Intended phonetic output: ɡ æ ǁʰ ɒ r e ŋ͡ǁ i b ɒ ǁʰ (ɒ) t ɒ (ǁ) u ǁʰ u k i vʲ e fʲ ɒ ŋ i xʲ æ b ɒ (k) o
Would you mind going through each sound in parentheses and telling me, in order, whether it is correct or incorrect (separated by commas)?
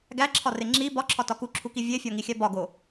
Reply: correct, incorrect, incorrect